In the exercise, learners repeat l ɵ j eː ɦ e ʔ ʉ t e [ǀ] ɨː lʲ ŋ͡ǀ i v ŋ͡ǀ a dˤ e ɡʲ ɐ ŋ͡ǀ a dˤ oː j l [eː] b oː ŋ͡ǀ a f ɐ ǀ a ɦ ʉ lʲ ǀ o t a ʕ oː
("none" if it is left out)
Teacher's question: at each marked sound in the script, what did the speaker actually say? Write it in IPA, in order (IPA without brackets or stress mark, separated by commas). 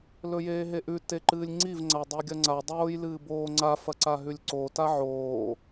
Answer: ǃ, ɨː